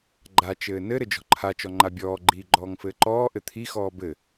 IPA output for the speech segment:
ɡ͡ǃ a t͡ʃ ɘː n ɘ ɾ ɘ d͡ʒ ɔ̤ ǃʰ a t͡ʃ ɔ ŋ͡ǃ a bʲ ɔː ɡ͡ǃ iː ɡ͡ǃ ɔː ŋ f ɘː ǃ ɔː ʔ ɘ t̪ʰ i x ɔː b ɘ

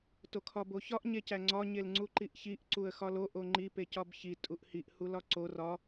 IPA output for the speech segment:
t o kʰ ɒ b o ç ɒ ʔ ɲ e c æ ŋ͡ǀ ɒ ɲ e l ŋ͡ǀ u ǃ i ʔ ç i ʔ ǀ u ə̯ x ɒ l o ʔ o ŋ͡ǃ i p e c ɒ b ç i tʼ u ʔ h i ʔ h u l ɒ ǀ o r ɒ

